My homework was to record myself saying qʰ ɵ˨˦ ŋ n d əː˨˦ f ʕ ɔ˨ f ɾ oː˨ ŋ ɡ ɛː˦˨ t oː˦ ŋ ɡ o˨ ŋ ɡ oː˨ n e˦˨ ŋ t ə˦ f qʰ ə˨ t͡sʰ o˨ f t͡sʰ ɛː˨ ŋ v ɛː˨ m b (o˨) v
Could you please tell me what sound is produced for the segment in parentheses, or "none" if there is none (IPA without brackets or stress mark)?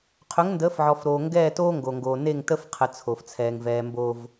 o˨